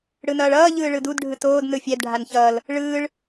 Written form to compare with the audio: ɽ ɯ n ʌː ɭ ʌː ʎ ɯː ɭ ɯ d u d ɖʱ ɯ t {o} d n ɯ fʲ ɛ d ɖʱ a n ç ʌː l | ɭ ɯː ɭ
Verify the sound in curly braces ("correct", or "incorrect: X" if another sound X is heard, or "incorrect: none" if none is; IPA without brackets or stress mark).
incorrect: oː